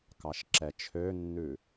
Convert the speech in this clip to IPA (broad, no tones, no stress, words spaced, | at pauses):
kɑʃǁɛt͡ʃʰønːʉ